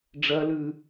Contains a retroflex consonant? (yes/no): yes